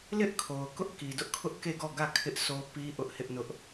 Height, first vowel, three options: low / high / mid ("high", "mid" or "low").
high